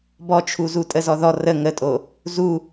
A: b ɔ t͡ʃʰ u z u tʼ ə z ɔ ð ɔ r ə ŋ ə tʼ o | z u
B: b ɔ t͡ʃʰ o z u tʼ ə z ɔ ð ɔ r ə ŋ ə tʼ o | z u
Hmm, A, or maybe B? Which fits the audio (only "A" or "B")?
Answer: A